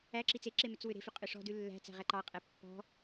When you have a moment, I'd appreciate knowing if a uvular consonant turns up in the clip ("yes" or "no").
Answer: yes